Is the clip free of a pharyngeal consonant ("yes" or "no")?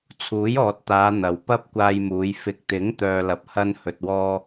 yes